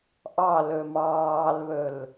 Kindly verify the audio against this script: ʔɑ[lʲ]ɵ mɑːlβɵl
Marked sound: incorrect: l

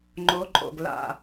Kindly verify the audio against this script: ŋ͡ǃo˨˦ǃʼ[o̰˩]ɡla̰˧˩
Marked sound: correct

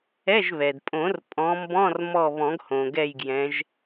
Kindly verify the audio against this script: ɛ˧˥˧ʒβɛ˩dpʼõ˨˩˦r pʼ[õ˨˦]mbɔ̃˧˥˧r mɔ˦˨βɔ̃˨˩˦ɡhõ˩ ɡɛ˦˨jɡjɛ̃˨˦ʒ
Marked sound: incorrect: ɔ̃˨˦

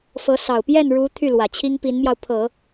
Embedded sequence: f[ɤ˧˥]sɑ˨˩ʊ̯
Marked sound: correct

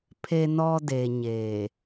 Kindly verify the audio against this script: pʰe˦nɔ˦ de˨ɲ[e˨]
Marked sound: correct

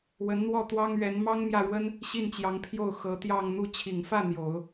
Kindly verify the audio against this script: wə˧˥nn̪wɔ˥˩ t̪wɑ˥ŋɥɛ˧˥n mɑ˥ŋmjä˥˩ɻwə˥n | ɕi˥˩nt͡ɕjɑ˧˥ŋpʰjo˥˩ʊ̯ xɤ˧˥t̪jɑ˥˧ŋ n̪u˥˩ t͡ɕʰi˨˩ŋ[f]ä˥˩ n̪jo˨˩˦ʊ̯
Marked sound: correct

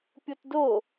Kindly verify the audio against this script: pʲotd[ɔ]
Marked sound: incorrect: o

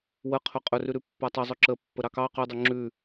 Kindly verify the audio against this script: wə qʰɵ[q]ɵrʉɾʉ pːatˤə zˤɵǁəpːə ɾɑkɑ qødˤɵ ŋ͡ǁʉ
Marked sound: incorrect: qʼ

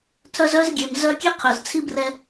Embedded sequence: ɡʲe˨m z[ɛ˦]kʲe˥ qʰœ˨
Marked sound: incorrect: œ˦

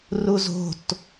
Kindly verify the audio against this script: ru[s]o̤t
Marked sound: incorrect: z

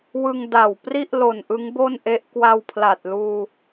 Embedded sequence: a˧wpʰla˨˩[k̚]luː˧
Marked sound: incorrect: t̚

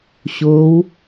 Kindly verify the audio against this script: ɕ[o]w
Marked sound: correct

